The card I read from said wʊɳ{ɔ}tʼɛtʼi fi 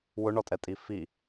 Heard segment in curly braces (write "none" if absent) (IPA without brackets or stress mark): ɔ